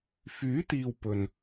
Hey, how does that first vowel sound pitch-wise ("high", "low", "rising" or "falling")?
rising